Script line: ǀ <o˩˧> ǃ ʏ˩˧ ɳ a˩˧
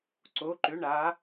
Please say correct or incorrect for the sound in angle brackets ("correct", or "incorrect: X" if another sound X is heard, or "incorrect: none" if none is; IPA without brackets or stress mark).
correct